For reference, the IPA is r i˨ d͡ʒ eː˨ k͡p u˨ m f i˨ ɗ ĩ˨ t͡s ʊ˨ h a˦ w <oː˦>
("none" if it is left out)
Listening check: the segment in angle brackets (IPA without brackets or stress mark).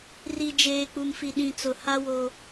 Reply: o˦